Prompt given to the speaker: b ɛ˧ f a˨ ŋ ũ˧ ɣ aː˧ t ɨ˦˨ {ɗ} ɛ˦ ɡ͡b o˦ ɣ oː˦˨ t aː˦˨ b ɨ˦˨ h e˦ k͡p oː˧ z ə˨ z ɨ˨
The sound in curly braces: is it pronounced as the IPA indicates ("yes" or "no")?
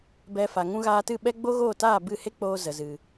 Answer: no